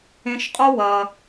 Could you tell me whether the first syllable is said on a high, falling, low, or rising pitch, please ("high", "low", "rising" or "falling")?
high